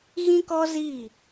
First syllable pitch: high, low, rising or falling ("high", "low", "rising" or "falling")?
high